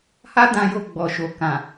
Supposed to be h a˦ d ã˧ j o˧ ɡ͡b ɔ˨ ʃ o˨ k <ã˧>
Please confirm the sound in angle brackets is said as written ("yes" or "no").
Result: no